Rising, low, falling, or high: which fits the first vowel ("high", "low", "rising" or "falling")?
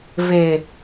low